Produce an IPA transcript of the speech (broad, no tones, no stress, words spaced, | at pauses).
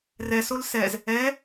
rɛsol sɛz | ɛ